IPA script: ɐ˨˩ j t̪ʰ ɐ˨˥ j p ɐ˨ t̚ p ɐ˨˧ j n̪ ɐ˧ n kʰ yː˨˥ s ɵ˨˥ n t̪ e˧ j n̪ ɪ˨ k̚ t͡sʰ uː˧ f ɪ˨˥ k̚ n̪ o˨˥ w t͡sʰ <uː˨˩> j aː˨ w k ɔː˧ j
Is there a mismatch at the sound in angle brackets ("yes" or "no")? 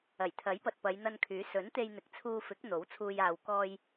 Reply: yes